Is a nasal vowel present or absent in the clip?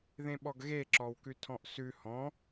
present